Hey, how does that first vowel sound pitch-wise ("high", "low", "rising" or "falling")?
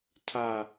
falling